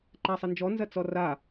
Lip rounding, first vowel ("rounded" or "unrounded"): unrounded